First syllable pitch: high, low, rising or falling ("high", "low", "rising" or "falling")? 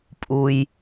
low